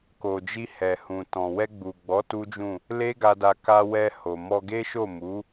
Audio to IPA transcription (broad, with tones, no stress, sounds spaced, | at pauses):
k o˨ d͡ʒ i˧ h ɛ˨ h ũ˨ t ɔ̃˨ w ɛ˧ ɡ͡b u˨ ɡ͡b ɔ˨˦ t u˦ d͡ʒ ũ˦˨ | l e˦ ɡ a˧ d a˧ k a˧ w ɛ˧ h o˨ m ɔ˧ ɡ e˦ ʃ o˦˨ m u˨˦